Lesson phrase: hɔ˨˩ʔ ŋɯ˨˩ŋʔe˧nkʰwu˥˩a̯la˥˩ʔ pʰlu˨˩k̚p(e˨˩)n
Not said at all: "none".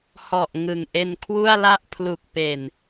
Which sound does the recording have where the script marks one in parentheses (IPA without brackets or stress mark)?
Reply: e˨˩